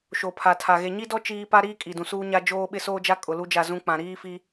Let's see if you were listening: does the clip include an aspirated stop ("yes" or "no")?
yes